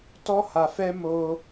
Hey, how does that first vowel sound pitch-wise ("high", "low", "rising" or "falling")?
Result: high